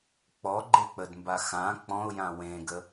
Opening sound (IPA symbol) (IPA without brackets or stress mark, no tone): k͡p